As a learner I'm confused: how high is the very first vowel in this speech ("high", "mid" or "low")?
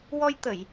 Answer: mid